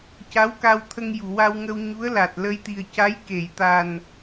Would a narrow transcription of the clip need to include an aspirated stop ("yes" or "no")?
yes